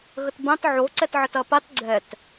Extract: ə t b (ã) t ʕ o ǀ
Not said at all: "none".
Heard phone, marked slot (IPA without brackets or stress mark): ã